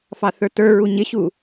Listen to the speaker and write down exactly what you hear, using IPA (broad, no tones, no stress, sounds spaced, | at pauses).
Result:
f ɑ θ ə˞ t ə˞ ɹ u ɲ ɪ ɕ u